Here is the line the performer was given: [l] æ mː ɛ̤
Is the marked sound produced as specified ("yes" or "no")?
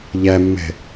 no